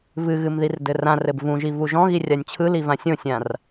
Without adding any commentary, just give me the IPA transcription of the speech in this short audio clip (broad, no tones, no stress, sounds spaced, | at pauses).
v ɨ ɣ ɨ m ð i r d ɘ r ã r ɘ b v ũ ʒ i v u ʒ ɔ̃ ɣ i rʲ a nʲ t͡ɕʰ ɯ l i v ã sʲ õ sʲ ã r